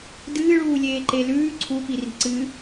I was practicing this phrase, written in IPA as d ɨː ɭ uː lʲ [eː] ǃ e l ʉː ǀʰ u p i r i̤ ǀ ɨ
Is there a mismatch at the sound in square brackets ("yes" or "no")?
no